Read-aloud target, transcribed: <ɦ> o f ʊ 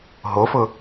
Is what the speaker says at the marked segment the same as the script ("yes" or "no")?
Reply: yes